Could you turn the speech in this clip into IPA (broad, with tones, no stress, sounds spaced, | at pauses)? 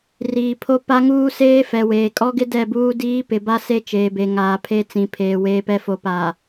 r iː˨ pʰ o˦ p a˦ ŋ uː˦ s eː˦ f ɛ˨ w eː˨ kʼ ɔ˦ ɡ ɪ˦ d ɛ˦˨ b uː˦ d iː˦ p ɪ˨ b a˦ s e˦ t͡ʃ eː˨ b e˨ ŋ aː˨ pʰ e˦ t͡s ĩ˨ pʰ eː˨ w eː˨ p ɛ˨ f o˨ p aː˨